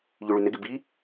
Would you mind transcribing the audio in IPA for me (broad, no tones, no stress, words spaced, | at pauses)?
ʎyɭynɪɡɪ bi